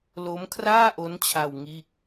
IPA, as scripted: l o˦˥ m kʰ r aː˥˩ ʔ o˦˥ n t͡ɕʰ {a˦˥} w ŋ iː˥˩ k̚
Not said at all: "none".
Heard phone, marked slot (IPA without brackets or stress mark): a˧